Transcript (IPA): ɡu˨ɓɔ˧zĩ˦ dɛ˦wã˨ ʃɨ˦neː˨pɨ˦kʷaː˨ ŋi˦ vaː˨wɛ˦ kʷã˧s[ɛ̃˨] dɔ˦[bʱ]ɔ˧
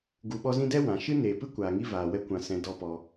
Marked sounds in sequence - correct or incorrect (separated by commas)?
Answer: incorrect, incorrect